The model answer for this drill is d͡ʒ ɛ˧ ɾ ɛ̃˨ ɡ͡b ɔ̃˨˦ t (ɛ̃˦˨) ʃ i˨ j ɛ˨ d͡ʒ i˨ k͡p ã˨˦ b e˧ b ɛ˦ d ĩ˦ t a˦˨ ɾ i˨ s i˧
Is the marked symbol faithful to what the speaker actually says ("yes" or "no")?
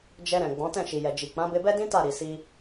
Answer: yes